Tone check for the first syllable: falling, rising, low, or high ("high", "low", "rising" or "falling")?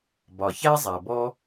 low